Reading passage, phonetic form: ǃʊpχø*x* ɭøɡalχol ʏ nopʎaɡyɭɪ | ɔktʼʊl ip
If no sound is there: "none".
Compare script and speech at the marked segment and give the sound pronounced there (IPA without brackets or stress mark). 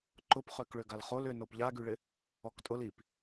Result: k